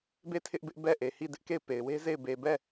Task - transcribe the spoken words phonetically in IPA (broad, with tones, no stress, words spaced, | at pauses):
be˦˨tʰɪ˦ʔbɪ˦ʔ bɛ˦˨ ʔe˨hi˦˨dɪ˦ʔ ke˦˨ɪ̯pe˨ɪ̯ we˦ze˦˨ɪ̯ be˨bɛ˦˨